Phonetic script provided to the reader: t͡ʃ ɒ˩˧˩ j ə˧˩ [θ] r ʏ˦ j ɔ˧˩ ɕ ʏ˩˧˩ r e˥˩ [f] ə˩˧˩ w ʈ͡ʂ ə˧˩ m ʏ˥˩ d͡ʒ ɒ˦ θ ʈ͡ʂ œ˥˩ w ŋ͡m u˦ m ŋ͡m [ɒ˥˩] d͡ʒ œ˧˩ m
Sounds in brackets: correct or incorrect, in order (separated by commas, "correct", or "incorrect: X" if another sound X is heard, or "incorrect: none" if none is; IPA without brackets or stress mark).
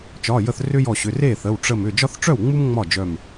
correct, incorrect: θ, correct